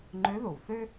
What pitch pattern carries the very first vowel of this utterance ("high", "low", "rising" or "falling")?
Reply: rising